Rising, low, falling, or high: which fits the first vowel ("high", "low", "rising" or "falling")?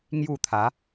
falling